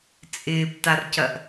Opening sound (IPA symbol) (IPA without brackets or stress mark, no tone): t͡sʼ